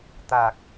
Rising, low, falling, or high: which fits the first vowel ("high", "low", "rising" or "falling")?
low